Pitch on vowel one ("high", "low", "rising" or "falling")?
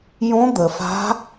rising